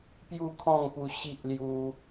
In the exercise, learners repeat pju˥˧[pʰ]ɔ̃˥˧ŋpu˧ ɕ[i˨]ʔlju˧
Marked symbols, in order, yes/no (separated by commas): no, no